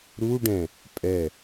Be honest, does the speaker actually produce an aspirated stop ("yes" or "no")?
no